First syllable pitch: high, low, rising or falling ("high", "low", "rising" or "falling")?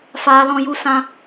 high